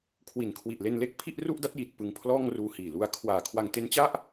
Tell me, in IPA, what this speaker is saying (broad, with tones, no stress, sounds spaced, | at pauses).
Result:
kʰ w i˨˩ n kʰ w i˨˩ ʔ l e˧ n l e˦˥ k̚ pʰ i˥˩ ʔ r u˥˩ ʔ d a˦˥ t̚ j iː˨˩ t̚ p ɯ˧ ŋ pʰ l ɔː˥˩ ŋ r uː˧ h iː˨˩ l u˧ a̯ kʰ w aː˨˩ kʰ w a˧ ŋ t e˦˥ n t͡ɕ a˥˩ ʔ